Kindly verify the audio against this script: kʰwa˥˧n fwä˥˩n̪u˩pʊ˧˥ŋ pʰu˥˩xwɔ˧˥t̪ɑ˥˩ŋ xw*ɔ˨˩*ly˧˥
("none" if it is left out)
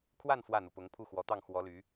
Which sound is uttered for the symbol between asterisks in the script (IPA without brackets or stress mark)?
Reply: ɔ˧˥